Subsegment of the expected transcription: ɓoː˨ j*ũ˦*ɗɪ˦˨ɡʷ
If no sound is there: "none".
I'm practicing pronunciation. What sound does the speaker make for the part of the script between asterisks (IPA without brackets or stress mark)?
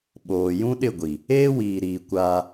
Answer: ũ˦